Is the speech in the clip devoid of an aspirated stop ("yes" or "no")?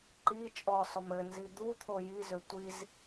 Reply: no